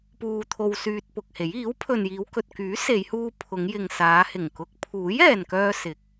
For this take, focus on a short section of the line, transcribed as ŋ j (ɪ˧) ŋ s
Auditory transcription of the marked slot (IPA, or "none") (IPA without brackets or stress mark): ɪ˨